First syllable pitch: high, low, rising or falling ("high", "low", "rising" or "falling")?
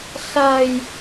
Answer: low